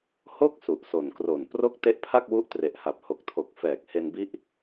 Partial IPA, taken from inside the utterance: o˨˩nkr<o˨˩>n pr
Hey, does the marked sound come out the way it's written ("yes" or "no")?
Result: yes